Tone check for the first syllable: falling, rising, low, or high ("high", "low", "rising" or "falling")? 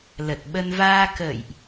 low